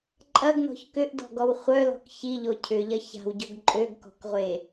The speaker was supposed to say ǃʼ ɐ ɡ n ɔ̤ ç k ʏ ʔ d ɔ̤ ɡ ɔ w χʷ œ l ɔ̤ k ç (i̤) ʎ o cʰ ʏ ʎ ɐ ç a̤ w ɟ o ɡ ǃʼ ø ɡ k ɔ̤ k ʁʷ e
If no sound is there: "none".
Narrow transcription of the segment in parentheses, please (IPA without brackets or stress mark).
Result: i